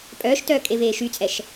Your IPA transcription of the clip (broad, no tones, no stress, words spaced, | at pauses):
pʼœːʃtœː kʼeveːʃyt͡sʼɛʃ